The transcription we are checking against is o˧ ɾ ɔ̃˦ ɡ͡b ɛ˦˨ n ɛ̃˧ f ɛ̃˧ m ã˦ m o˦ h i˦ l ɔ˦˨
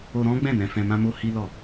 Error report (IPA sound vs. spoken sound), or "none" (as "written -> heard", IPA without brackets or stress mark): ɛ˦˨ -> ɛ̃˦˨